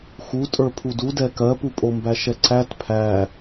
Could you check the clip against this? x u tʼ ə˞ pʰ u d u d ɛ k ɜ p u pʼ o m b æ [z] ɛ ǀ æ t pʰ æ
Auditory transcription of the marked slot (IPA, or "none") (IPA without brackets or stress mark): ʃ